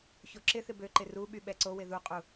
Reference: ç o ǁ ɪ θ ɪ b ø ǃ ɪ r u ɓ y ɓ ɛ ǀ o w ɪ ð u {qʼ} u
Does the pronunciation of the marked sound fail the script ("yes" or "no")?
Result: no